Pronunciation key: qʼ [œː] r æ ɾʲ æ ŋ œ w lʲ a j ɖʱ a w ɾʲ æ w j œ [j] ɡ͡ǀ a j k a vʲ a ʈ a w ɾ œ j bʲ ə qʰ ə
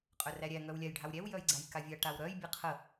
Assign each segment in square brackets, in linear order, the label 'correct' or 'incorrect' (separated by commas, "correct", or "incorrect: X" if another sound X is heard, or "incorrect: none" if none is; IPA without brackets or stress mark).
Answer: incorrect: œ, correct